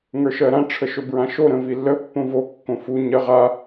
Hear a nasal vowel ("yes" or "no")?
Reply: yes